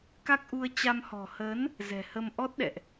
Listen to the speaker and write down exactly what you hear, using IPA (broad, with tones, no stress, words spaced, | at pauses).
ka˦˥k̚ʔu˧ə̯t͡ɕa˧m hɔ̤˨˩hə˨˦n | zɛ̤˨˩hə˧m ʔɔ˦˥t̚ɗɛ̰˧˨ʔ